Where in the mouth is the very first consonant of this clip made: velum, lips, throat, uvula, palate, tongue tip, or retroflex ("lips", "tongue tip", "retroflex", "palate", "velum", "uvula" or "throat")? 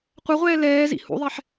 uvula